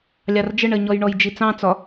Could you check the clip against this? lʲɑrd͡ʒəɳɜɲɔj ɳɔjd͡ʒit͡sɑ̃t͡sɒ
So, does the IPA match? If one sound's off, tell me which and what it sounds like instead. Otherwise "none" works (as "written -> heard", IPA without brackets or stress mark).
none